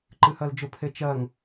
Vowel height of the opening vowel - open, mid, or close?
close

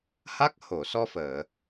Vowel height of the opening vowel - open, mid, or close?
open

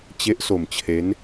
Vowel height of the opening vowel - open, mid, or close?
mid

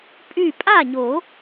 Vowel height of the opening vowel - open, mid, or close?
close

